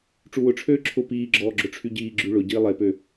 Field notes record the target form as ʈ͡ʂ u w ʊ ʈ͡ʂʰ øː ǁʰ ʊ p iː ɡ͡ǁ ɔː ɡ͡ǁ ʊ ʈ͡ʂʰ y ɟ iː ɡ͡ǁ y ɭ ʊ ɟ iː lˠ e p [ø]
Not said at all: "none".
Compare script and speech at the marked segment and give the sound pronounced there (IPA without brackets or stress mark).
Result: ø